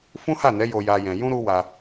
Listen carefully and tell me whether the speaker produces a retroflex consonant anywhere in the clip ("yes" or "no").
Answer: no